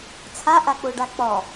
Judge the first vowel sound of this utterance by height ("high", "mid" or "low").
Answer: low